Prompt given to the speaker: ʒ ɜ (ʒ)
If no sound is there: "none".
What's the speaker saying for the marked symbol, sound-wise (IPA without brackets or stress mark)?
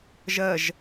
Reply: ʒ